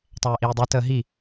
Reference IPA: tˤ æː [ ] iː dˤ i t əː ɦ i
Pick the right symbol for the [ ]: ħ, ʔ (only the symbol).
ʔ